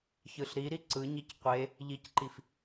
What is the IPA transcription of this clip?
ç ɯ ɬ ɾ i ɾ i ǀ ɯ ɲ i c qʷ e | ʎ i c ǃ i f

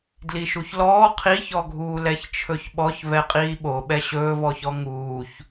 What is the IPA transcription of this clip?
d l i ʃ u ç l ɔː qʰ i ç ɔ ɡʱ uː l ɛ ç t͡ʃʰ ɵ ç ɓ ɔ ç v ɛ qʼ iː ɓ o ɓ ɛ ɕ ɵː v ɔ ç ɔ ŋ uː ç

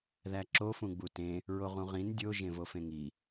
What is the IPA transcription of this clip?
ð æ ǁ o f ũ ɡ͡b u t ẽ | ɹ o ʁ ũ ʁ ĩ n dʲ o ʒ ẽ v o f ẽ ŋ i

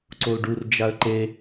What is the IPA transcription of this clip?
ǀ o l ɖ u r d͡ʒ a ə̯ ǃ e

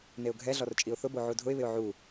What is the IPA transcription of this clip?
n e ʊ̯ ɡʱ ɛ ɮ ɔ r t͡ʃʼ i ʊ̯ θ ʊ b o ʕ u dʱ ʊ ɪ̯ β ɪ ʊ̯ ʕ u

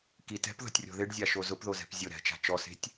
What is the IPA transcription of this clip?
k i t ɛ̤ p ð ɔ̤ tʲ rʲ ɔ̤ ð ɪ ɖ zʲ a ʃ o z ʊ p ð o z ɛ̤ p zʲ ʊ ɾ ɛ̤ t͡ʃ a̤ t͡ʃ ɔ s e̤ tʲ

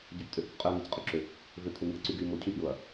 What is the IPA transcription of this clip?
ɟ ø p tʼ ʏ h y p qʼ ʏ ɐ̯ ŋ e c qʼ ʏ ǁ ʏ | v ʏ t̪ʰ ʏ m i ɐ̯ ǀ y ɡ y m ʊ cʰ y p j ʊ ɐ̯

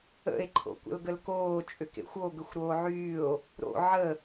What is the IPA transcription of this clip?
ə̰ e̯ ǃʰ o̰ kʷ ə̰ l ɡ ə l k oː t͡ʃʼ ʏ k ḛ xʷ o ɡ ʏ xʷ ɾ oː ʕ yː o̯ | ɾ o̰ ʕ ə

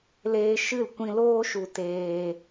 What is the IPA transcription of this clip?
l eː˧ ʃ ɨ˦˨ l kʷ ĩ˧ l oː˦ ʃ u˨ t eː˨

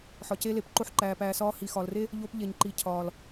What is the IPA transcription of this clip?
ħ ɒ˨ c eː˧ l e˨ p ǃ o˧ ħ ǃ æː˨ p æː˨ s ɒː˧ h i˨ x ɒ˨ l r e˦ | ʎ o˧ p ʎ e˨ ɲ ǃ i˨ cʰ ɒː˨ l

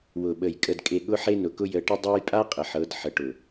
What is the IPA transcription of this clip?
w ʊ˨ ɓ ə˨ j kʼ ə˨ d kʼ e˨ ɠ ʊ˦ ħ e˦ n ʊ˨ k ʊ˦ j ə˨˦ ʈ ə˦ dˤ a˦ j pʼ a˦ qʼ ə˨ ħ ɤ˨˦ d ħ ə˨ ʈ ʊ˨

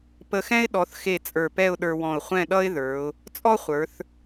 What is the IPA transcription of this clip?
p ə˧ x ɛ̃˥ ɪ̯ ɗ ɔ˩˧ θ x e˧˩ t͡sʼ ə˞˧˩ p ɛ˥˧ ʊ̯ ɗ ə˞˧ w ɔ̃˧˩ ʊ̯ χʷ ɛ̃˥˧ ɗ ʌ˥ ɪ̯ ð ə˞˩˧ ʊ̯ | t͡sʼ ɔ˥ χʷ ə˞˩˧ θ

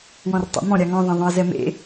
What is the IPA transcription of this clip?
w ɔ̃ r tˤ a̰ m ɔ̃ ɾʲ a ŋ ɔ̃ ðˤ ẽ ðˤ õ ə̯ z ɛ m ḛ

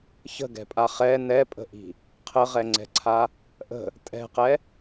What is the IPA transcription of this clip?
ç ə̤ ɡ ɛ̤ pʼ a χ ɛ n ɛ pʼ ə̤ ʔ i̤ | qʰ ə ʁ ɛ ŋ͡ǀ ɛ̤ ǀʰ a | ʔ ə̤ | tʼ ɛ̤ q ɛ

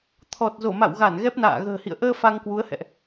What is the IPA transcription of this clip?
t̪ʰ ɔ˨˩ t̚ z o˧˩ m a̰˧˨ w ɣ a˧˩ n ɣ ɛ˦˥ p̚ n a̰ː˧˨ ɣ ə̤ː˨˩ h ḭ˧˨ ə̯ ʔ əː˧ f a˧ ŋ k w u˨˦ ə̯ h ɛ̰˧˨ ʔ

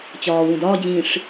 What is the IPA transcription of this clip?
t͡ɕ ɒː w ũ d ɒː d͡ʑ ĩː ʂ

